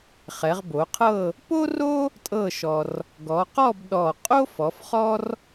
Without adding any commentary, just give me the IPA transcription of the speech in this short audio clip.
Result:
χ ɛ˩˧ ʁ b o˩˧ qʰ ɤ˥˧ | p o˥ r o˥ | tʼ ɤ˥˧ ʃ ɔ˧ r | ɡ ɔ˩˧ q ɔ˥˧ b ɗ ɔ˧˩ qʼ o˥ f ɔ˩˧ f χ ɔ˥ r

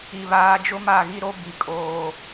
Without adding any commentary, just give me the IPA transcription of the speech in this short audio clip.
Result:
i˨ β aː˨˦ d͡ʒ ʊ˦ m a˦˨ ɣ i˦ ɾ o˦ b i˨ kʼ oː˨

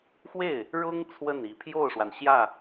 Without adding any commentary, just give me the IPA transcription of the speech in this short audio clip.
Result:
x w e˥˩ ɪ̯ | ɻ ʊ˥ ŋ t͡sʰ w ə˥˩ n i˨˩ pʰ j o˥˩ ʊ̯ ʂ w a˩ n ɕ j ä˥˩

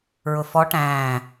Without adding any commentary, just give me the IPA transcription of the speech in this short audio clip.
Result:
ɹ ʊ f ɔ ʈ æ̃ː

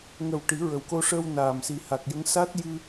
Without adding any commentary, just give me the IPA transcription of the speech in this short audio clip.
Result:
ŋ ə˨˩ w ʈ i˨˩˦ ɹ ə˨˩ w k o˧ ʂ əː˧ w n aː˨˩ m s i˨˩ h a˨˩ k̚ j ə˧˥ ŋ s a˦˥ t̚ j ɨ˧

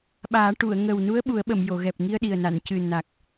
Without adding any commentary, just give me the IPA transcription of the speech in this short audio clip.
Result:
ɓ aː˨˩˦ ʈ u˨˩˨ ə̯ ŋ ə˨˩ w n u˧˥ ə̯ ɓ u˨˩˦ ə̯ ɓ ə˨˩˨ m j o˨˩˨ ɣ ɛ˨˩ p̚ ŋ i˧ ə̯ ɗ i˨˩ ə̯ n a˨˩˨ n c ɨ˨˩ n a˨˩ k̚

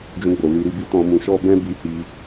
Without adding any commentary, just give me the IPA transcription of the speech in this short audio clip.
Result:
d͡ʒ ũ˧ ɡ͡b o˨ l i˧ ɾ i˧ b i˦ t ɔ̃˧ m ũ˧ ʃ ɔ˦ b ɛ̃˦ b i˧ h i˧

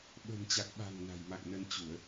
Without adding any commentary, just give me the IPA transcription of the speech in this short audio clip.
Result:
ɓ ə̤˨˩ n t͡ɕ a˨˩ k̚ ɓ a̤˨˩ ŋ n a̤˨˩ j m a̰˧˨ ŋ n ə˧ n t͡ɕ u˧˩˨ ə̯

